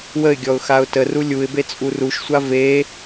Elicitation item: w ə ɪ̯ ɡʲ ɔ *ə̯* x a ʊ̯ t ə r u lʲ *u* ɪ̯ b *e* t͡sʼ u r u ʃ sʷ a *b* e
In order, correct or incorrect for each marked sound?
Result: incorrect, correct, correct, incorrect

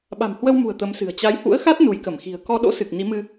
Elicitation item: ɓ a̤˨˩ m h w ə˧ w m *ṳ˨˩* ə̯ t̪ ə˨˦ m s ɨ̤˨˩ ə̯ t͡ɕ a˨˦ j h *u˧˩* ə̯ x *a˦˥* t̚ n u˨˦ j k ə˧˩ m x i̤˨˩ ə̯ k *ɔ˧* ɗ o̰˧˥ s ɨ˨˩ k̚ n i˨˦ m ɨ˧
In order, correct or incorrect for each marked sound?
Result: correct, incorrect, correct, correct

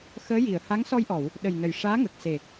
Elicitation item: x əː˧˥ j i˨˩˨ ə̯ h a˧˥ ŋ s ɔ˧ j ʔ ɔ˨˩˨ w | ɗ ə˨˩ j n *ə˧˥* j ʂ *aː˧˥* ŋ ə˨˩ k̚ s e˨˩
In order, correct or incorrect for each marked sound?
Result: incorrect, correct

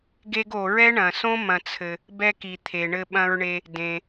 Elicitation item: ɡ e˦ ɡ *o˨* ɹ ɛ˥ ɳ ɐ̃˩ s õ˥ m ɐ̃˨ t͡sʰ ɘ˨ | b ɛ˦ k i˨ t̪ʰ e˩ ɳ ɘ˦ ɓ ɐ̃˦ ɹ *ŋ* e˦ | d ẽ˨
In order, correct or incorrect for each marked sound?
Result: correct, incorrect

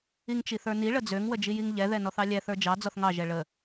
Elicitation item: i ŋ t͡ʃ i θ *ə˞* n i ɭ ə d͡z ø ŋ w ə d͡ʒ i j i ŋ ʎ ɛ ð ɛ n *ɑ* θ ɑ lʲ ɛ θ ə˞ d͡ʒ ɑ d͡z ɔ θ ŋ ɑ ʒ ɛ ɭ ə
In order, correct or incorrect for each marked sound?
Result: correct, incorrect

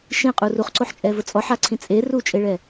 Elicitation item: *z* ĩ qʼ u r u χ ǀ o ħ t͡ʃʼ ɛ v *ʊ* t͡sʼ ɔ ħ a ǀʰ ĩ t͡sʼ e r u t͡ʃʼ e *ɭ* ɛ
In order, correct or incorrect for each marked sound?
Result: incorrect, correct, correct

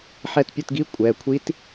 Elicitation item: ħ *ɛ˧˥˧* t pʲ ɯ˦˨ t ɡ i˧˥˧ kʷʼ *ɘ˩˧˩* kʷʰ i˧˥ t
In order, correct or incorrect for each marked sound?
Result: incorrect, incorrect

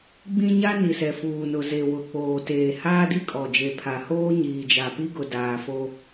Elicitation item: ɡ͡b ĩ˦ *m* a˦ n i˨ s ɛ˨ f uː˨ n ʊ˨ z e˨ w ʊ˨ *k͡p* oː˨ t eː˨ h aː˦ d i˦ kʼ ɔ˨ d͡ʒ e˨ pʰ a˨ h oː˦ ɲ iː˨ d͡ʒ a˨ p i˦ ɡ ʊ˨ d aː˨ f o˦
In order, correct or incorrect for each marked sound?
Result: incorrect, correct

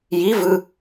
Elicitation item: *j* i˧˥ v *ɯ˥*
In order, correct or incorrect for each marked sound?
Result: correct, incorrect

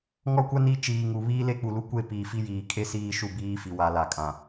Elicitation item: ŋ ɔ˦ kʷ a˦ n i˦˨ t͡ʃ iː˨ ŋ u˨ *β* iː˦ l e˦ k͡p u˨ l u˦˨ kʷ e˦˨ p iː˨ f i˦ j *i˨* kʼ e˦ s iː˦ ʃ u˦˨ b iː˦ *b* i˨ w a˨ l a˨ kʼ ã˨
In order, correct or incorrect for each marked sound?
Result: correct, incorrect, incorrect

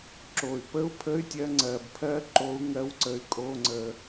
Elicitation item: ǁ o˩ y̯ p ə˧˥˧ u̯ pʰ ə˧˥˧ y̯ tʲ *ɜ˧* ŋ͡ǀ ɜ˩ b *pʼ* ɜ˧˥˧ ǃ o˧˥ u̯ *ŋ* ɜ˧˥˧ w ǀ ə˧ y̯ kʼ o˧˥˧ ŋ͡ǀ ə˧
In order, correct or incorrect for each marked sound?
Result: correct, incorrect, correct

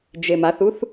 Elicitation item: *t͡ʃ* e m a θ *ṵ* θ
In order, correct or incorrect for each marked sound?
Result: incorrect, incorrect

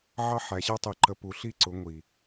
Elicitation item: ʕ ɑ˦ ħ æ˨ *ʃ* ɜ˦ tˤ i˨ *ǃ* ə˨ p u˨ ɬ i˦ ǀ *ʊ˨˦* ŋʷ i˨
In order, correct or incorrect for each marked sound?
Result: incorrect, correct, correct

